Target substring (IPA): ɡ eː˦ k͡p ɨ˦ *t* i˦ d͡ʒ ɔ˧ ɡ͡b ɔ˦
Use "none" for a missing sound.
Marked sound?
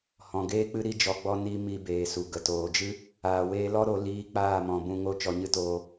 ɾ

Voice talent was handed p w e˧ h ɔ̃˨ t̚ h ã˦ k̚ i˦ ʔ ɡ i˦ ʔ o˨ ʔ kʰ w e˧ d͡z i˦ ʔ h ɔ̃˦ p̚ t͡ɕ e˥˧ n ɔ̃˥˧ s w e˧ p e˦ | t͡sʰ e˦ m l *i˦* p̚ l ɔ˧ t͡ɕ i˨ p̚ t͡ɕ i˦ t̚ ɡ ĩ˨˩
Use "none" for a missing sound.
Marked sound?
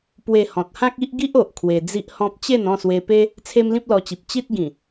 ĩ˦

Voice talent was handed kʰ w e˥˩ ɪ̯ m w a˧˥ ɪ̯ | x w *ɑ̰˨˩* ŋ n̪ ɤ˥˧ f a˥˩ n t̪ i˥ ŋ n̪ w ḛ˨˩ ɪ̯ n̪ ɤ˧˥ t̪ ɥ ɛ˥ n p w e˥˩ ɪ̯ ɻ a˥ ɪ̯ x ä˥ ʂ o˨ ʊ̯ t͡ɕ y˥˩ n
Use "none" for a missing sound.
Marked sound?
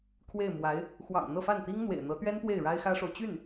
ɑ̰˨˩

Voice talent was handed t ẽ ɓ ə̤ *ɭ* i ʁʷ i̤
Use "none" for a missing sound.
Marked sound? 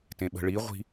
ɭ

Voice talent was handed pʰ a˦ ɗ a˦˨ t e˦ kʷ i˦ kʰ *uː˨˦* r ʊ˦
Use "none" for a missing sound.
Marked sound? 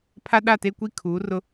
uː˨˦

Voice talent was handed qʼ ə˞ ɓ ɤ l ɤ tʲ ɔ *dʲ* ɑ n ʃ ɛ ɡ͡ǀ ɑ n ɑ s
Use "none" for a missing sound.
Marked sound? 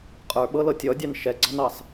dʲ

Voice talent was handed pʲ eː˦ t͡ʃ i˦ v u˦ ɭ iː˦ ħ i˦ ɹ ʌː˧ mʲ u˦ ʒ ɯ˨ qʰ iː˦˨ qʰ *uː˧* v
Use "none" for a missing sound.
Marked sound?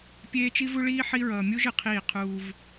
uː˧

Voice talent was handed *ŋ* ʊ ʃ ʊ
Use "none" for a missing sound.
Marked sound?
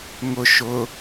ŋ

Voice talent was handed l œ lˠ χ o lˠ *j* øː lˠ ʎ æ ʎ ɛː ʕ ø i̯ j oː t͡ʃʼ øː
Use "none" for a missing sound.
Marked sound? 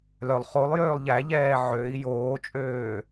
j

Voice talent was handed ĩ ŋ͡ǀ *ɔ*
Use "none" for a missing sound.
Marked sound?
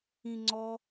ɔ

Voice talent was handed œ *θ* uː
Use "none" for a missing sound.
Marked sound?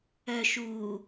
ʃ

